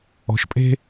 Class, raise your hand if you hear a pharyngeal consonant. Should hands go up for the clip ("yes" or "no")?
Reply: no